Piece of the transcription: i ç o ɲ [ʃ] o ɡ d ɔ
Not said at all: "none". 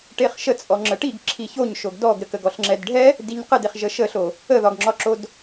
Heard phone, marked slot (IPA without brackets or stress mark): ʃ